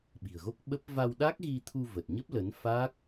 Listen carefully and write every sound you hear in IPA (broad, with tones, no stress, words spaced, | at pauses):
ɓi̤˨˩ə̯ɣo˦˥k̚ɓə˦˥p̚ va˧wɗa˦˥k̚ɣi˧t̪ʰu˧ və˨˩t̚ ɲə˦˥p̚lə˨˦n fa˦˥k̚